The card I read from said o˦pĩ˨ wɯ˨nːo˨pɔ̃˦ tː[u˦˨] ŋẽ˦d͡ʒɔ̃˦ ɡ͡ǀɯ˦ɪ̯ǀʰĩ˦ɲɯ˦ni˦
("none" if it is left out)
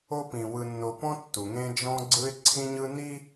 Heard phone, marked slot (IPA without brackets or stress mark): u˨